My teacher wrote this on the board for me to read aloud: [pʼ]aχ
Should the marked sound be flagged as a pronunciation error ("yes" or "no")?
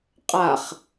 yes